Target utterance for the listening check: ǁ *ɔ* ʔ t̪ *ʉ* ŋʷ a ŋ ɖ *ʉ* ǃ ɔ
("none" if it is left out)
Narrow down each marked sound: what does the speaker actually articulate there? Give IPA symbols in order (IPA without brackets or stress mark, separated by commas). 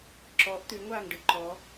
ɔ, ʉ, ɨ